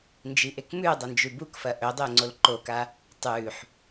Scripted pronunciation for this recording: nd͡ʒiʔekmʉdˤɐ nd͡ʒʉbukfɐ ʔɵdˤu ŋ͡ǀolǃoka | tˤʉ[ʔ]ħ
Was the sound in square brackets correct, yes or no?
no